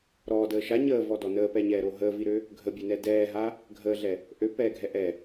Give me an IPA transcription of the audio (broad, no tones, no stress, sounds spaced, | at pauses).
ɾ ɔː d əː ʃ a ɲ əː v ɔ d ɔ n əː p ɛ ɲ ɛː ɾ o ɦ əː v i ɾ ø | ɡʱ ə bʲ ɛ n ɛ d ɛː ɦ a | ɡʱ əː ɮ ɛ | ʔ ø p ɛː ɡʱ ɛ ʔ ɛ